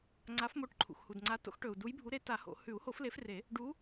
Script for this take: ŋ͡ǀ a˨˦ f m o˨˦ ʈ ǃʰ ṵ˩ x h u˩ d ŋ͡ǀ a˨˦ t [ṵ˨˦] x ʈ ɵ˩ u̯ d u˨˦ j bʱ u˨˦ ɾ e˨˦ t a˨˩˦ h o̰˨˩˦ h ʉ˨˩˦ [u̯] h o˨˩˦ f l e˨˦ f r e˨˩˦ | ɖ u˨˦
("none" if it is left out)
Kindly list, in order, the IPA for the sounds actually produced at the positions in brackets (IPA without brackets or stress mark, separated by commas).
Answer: o̰˨˦, u̯